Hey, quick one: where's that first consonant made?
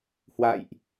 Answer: throat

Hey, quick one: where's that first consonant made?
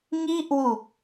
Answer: velum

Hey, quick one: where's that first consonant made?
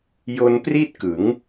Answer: palate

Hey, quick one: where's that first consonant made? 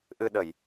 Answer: throat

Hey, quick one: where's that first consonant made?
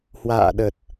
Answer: throat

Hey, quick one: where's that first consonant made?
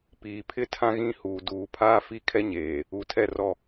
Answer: lips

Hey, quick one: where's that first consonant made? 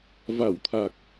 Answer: lips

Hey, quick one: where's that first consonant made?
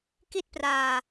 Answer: velum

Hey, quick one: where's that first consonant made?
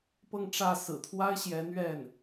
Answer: lips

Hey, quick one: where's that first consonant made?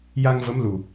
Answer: palate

